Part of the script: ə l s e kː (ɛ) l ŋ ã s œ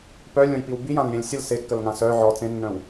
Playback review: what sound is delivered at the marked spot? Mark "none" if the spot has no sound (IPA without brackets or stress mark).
ə